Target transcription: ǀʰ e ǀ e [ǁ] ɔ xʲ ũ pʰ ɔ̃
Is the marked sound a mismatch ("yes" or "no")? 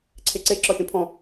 no